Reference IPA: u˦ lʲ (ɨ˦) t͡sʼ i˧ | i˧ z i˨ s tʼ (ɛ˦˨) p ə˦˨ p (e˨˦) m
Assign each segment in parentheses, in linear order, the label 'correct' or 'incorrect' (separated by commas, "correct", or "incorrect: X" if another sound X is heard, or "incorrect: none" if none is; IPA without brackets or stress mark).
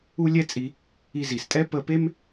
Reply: incorrect: ɛ˦, incorrect: ɛ˦, incorrect: e˦